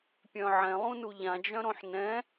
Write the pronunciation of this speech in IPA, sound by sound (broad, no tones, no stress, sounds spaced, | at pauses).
pʲ œ̃ ʕ ɛ̃ lˠ ũ n u ʎ ã d͡ʒ œ̃ ɾ õ ħ n ɛ̃